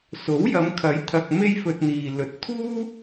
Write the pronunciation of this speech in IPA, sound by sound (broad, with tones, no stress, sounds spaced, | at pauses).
s o˨˥ w j ɐ˨˧ m kʰ ɐ˨˥ j t̪ʰ ɐ˨ k̚ m e˥ j f ɵ˧ t̚ n̪ iː˨ l ɵ˨ t̚ t̪ʰ uː˥